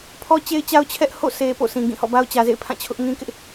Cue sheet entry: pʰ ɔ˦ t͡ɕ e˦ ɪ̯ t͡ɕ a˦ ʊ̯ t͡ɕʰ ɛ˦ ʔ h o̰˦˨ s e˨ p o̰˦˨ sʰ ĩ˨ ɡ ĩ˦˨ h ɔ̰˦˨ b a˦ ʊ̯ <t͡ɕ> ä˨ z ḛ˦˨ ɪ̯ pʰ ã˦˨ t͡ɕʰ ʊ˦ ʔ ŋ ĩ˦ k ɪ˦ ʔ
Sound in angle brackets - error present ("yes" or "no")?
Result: no